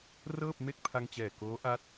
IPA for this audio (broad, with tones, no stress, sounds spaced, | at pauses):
r ɤː˥˩ p̚ m e˥˩ k̚ pʰ a˧ ŋ t͡ɕ ɛː˨˩ k oː˦˥ ʔ a˦˥ t̚